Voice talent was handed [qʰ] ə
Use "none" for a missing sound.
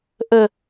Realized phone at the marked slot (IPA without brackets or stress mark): ʔ